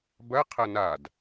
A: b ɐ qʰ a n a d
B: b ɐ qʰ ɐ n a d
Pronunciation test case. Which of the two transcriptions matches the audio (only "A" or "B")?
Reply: B